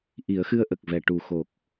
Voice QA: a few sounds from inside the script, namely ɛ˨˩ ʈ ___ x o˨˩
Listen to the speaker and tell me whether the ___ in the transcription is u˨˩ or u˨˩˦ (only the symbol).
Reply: u˨˩